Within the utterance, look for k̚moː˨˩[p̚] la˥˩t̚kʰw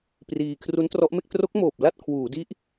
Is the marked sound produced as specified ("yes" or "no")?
yes